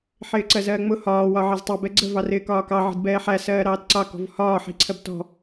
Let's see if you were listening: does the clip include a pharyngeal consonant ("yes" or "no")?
yes